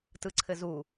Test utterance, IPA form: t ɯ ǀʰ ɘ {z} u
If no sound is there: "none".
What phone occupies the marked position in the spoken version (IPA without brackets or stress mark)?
z